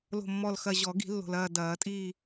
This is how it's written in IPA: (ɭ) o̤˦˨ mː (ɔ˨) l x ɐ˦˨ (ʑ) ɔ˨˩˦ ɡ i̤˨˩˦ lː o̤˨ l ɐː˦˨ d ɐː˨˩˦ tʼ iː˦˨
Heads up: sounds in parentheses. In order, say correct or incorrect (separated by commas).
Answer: incorrect, incorrect, correct